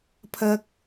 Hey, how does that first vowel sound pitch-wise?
high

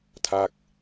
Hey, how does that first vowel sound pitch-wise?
falling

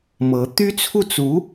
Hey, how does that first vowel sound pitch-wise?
rising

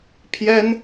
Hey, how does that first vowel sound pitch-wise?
high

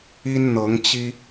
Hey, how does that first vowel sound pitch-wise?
high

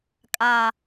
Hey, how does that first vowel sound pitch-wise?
low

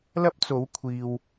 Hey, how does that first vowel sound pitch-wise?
high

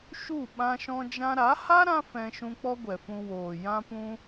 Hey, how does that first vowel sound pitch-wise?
falling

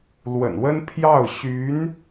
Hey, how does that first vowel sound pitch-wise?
low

